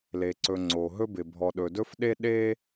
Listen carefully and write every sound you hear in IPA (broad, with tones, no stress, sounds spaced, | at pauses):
l e˩ ǀ ɵ˩ ŋ͡ǀ o˩ ɦ ɵ˧ b ɪ˩ bʱ ɔ˩ ɗ ɵ˩ d ɵ˧ f ɗ e˧ ɗ e˧